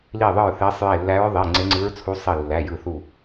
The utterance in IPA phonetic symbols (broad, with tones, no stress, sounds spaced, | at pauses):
l i˧˩ ðˤ ɯ˧˩ ɹ θ e˧˥ sˤ j e˧˩ lː æ˧˥ ɹ ðˤ e˩˧˩ ŋ͡ǀ e˧˥ ŋ͡ǀ ɯ˧˥ ɹ t͡sʰ u˧˥ sˤ i˧˩ lː æ˩˧˩ j ɯ˧˩ θ u˧˩